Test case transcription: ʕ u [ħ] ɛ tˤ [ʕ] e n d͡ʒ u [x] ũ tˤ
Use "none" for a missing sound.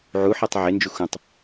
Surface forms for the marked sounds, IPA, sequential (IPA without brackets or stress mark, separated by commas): ħ, ʕ, x